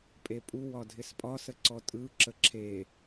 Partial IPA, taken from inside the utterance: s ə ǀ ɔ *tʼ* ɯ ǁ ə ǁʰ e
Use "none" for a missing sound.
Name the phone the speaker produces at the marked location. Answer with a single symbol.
tʼ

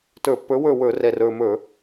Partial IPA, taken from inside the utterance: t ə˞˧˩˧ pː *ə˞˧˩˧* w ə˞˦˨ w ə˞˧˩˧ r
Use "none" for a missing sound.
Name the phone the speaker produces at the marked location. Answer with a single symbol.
ə˞˨˥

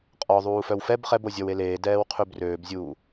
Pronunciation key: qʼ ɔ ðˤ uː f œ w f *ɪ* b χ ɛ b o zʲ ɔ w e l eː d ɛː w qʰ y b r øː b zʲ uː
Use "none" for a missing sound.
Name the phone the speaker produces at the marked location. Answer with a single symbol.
ɛ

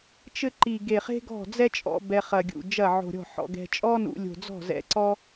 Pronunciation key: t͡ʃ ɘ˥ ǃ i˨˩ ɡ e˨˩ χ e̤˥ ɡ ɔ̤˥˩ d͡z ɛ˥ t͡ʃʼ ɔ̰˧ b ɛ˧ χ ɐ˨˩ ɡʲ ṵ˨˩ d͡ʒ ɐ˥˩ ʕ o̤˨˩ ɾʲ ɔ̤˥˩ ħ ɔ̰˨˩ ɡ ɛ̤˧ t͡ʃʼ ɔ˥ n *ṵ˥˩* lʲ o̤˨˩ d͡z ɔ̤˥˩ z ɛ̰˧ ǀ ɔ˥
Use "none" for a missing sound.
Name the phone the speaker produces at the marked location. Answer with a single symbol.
ṵ˧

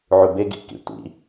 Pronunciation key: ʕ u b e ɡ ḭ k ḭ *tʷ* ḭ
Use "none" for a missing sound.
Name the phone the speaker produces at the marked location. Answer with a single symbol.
tʷ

